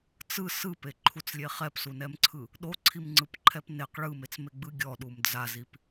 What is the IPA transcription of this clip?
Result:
t͡s ɯ s ɯ p e ǃʰ u t͡s lʲ e χ ɛ p s u n ɛ m ǀʰ ɯ | ɗ o ǀʰ i m ŋ͡ǀ ɯ p ǃʰ ɛ p n e q ɭ ɯ m e t͡s m e ɡ͡b ɯ ɡʲ ɔ ɗ u m d͡z a z i p

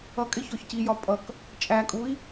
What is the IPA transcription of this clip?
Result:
ʌ kʼ ɪ ç ɔ ç c i j ɒ pʼ ʌ k | t͡ʃʼ æ kʼ u i̯

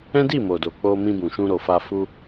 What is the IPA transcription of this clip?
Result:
ɛ̃˦ d i˦˨ m o˨ d o˨ k͡p o˧ m ĩ˧ b ũ˨ ʃ ũ˧ ɾ o˨ f a˧ f u˧

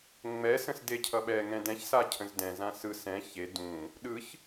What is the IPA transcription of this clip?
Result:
ŋ͡m ɛ s ə̃ s d e cʰ ʌ ɓ ɛ ŋ ɛ̃ d ɛ̃ ç s a cʰ ə̃ z d ɛ̃ z ã s ɯ s ɛ̃ ç e d ũ | ɗ ɯ ç

